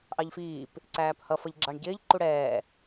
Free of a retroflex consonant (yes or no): no